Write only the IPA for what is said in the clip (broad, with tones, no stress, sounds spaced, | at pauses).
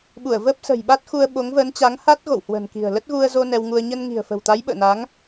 ɓ u˧˩ ə̯ v əː˦˥ p̚ s ə̤˨˩ j ɓ a˦˥ t̚ x u˧ ə̯ ɓ o˨˦ ŋ v əː˨˦ n t͡ɕ a˨˦ ŋ h a˦˥ t̚ ɣ o̰˧˨ w h w ə̤ː˨˩ n k i̤˨˩ ə̯ l ə˦˥ t̚ ɣ u˧ ə̯ z o˧ n ɛ˧ w ŋ u˧ ə̯ ɲ ə˧ n ŋ i̤˨˩ ə̯ f ə̤˨˩ w t̪ a˨˦ j ɓ ə̰ː˧˨ n a˨˦ ŋ